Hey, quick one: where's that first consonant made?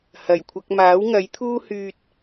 throat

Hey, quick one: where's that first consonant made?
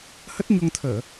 throat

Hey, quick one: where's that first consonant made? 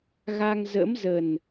velum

